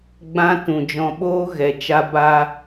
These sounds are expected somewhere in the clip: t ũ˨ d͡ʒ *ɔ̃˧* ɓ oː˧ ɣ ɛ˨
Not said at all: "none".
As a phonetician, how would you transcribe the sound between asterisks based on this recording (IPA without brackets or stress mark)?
ɔ̃˨